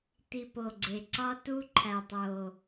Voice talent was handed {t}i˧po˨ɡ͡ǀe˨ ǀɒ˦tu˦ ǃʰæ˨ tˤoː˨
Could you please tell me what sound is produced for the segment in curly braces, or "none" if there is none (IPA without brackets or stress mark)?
t